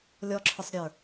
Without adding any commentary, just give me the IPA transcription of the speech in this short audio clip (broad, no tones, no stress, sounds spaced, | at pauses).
lʲ ɔ ǁʰ ʊ sˤ ɾʲ ə˞